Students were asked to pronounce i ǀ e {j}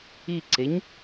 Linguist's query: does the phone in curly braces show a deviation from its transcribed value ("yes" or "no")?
yes